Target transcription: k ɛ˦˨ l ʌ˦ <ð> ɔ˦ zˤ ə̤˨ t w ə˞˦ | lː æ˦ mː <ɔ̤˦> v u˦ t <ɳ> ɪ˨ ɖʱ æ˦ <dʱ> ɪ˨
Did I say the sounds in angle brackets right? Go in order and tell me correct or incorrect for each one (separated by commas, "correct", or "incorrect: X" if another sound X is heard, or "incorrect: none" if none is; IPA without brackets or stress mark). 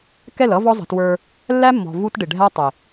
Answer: incorrect: v, incorrect: ɔ̤˨, incorrect: ɖ, incorrect: tˤ